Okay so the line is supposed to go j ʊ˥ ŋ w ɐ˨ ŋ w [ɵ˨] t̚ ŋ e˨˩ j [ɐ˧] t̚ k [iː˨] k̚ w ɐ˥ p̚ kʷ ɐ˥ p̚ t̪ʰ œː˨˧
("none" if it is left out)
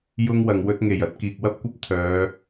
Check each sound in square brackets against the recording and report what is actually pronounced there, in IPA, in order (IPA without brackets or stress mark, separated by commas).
ɵ˧, ɐ˧, iː˨